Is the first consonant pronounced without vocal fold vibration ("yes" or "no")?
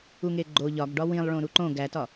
no